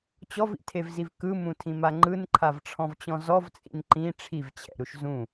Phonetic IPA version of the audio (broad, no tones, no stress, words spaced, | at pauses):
t͡ɕɔvḭtʰevziv kɯmũtʰĩma ŋ͡ǃɯnǃʰavʈ͡ʂʰɔ̃vt͡ɕɔ̃ zɔvt͡sʼḭn ǃĩ ʈ͡ʂʰivt͡ɕʰɛ̰ɾuʃ zũ